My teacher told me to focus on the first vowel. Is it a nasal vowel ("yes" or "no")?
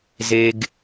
no